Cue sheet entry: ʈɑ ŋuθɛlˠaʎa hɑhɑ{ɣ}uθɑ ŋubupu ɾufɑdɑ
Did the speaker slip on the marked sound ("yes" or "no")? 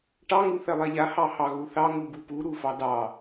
no